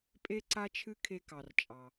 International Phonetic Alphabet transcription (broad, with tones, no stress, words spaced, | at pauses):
pʼe˦ǀa˦t͡ʃʰɨ˦ kʰe˦kɑ˧r t͡ʃʼɑ˧